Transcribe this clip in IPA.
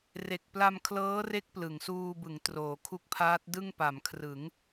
r e˨˩ k̚ p l a˧ m kʰ l ɤː˦˥ r e˦˥ k̚ p l ɯ˩˦ ŋ s uː˧ b ɯ˩˦ ŋ t r oː˩˦ kʰ u˦˥ k̚ pʰ aː˦˥ t̚ d ɯ˥˩ ŋ p a˩˦ m kʰ r ɯ˩˦ ŋ

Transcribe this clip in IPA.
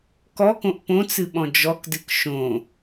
k ɔ k õ ʔ p õ t͡s ɨ ɓ ɔ̃ d͡ʒ ɔ k d ɨ k ʃ õ

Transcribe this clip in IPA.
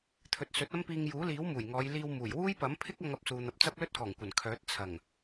t̪ʰ ɵ˨ t̚ s ɵ˨˥ t̚ ɐ˥ m p iː˧ ŋ j uː˨˥ l iː˨˥ w m uː˨˩ j ŋ ɔː˨˧ j l iː˧ w m uː˨˩ j w uː˥ j p ɐ˨˥ m pʰ ɪ˥ k̚ ɐ˧ ŋ ɐ˨ p̚ s uː˨ n̪ ɐ˨ p̚ t͡s ɐ˥ p̚ l ɵ˥ t̚ k ɔː˨˩ ŋ kʷ ɐ˨˩ n kʰ œː˨˥ t̚ t͡sʰ ɐ˨˩ ŋ

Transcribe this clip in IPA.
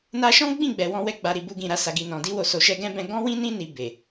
n a˧ ʃ ɔ̃˦ ɡ͡b ĩ˦˨ ɡ͡b ɛ˨ w ɔ̃˧ w ɛ˧ ɡ͡b a˨ ɾ i˨ b u˧ ɡ ĩ˨ ɾ a˧ s a˨ ɡ i˨ n ɔ̃˨ d i˧ w o˨ s o˨ ʃ ɛ˧ ɡ ɛ̃˦ b ɛ̃˧ ɡ ɔ̃˦ w ĩ˦ n ĩ˦ n i˧ b e˨

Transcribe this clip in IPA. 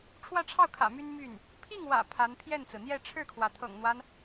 ʈ͡ʂʰ w ä˥˧ ʈ͡ʂʰ ɑ˥˩ ʊ̯ kʰ ä̰˨˩ m y˥ n m y˥˩ n | pʰ i˥˩ ŋ w ä̰˨˩ pʰ a˧˥ n pʰ j ɛ˥˩ n t͡s ɹ̩˩ n̪ j ɛ˥˧ ʈ͡ʂʰ ɻ̩˥˩ kʰ w ä˩ t̪ʰ ɤ̰˨˩ ŋ n̪ w a˦ n

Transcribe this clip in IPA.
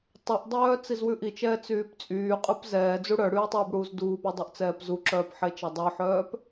tˤ ɵ ʔ dˤ œː t͡s i z w ʉ ʔ i t͡ʃ ɛː t͡s yː p t͡sʼ yː qʼ ʉ p z ɛː d͡z u ɽ œ ɽ yː tˤ yː b ɽ uː z d uː p y dˤ œ ʔ t͡s ɛː p z u ǁ œː p ħ e t͡ʃ ɛ dˤ ɵ ħ œː p

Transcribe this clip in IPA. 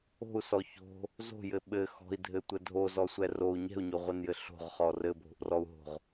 o̤ u̯ s ɔ ç o̤ | z o̤ j ɘ ɓ ɘ x ɔ̤ i̯ dʱ ɘ tʷ ɘ dʱ o z ɔ sʷ ɛ r o u̯ ɲ ɛ̤ u̯ ɲ o ʁʷ ɘ n j ɘ ɬ o̤ ʁ χ ɔ r ɘ bʱ o̤ ʔ r ɔ u̯ ɦ o̤ ʁ

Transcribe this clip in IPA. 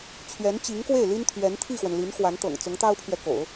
t͡ɕʰ ɥ ɛ˧˥ n t͡ɕ i˧˥ ŋ k w e˥˩ ɪ̯ l i˥ n t̪ʰ ɥ ɛ˧˥ n t̪ʰ i˥˩ x w ə˩ n l i˧˥ n x w a˧˥ n t̪ ɤ̰˨˩ ŋ t͡s ʊ˧˥ ŋ t̪ ɑ˥ ʊ̯ pʰ ɥ ɛ˨ k o̰˨˩˦ ʊ̯

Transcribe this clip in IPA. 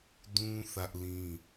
d ũ˦ θ ä˦ ʔ l ĩ˦

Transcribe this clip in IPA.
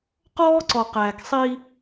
q ɔː˦ ǀ ɔ˨ q æː˨ k sˤ iː˦

